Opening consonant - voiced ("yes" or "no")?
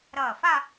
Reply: yes